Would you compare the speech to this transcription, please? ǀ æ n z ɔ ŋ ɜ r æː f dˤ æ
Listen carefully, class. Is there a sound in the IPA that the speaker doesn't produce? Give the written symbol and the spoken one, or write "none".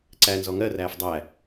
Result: none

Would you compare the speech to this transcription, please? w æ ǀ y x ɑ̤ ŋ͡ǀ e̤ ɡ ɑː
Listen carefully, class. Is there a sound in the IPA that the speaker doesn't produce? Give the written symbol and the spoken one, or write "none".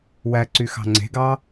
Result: none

